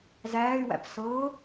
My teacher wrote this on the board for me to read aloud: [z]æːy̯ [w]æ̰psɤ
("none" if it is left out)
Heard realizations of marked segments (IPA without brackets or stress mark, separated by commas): z, w